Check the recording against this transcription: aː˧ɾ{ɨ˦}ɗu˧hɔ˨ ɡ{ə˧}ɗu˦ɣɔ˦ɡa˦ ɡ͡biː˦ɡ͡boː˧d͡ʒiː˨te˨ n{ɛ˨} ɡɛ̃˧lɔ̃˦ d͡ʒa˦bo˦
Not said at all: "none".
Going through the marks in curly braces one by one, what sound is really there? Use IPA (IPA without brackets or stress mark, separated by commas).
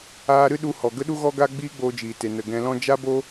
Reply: ɨ˦, ə˦, ə˨